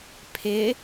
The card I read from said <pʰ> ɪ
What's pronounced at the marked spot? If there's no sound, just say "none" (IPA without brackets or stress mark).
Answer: pʰ